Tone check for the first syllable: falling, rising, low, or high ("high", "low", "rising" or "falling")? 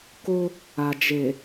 high